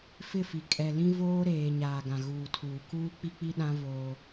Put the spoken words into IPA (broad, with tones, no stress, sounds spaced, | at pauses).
f ɪ˦˨ f i˨ kʼ ɛ˨ l ĩ˦ v oː˦ ɾ eː˨ ɲ aː˨ ɡ ã˨ ɣ uː˨ tʰ uː˨ k uː˦ k͡p i˦ k͡p i˦ ɗ ã˦ v oː˦